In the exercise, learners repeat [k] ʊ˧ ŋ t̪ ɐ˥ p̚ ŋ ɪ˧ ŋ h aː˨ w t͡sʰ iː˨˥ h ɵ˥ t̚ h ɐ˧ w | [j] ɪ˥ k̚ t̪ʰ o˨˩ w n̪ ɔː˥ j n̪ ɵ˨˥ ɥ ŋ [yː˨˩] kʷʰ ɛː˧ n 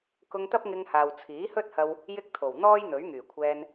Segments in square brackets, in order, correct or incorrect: correct, correct, correct

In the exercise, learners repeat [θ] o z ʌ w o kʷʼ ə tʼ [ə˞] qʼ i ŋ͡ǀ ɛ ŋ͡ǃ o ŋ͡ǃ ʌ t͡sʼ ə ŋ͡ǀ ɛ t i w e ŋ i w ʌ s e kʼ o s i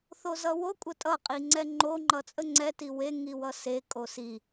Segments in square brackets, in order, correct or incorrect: correct, incorrect: ʌ

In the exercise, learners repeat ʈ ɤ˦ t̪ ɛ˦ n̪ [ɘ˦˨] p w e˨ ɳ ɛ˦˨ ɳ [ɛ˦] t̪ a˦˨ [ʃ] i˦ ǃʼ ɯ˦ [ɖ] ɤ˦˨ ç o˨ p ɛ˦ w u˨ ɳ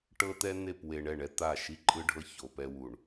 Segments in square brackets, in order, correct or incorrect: incorrect: e˦˨, correct, correct, incorrect: ɖʱ

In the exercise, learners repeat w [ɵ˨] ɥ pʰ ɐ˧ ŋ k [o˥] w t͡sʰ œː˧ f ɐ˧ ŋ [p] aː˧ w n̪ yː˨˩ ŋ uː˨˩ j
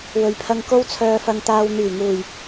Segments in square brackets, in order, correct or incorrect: correct, correct, incorrect: t̪

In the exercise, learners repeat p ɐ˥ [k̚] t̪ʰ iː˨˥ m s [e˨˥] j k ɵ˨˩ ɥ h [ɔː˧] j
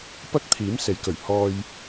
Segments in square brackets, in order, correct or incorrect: correct, correct, correct

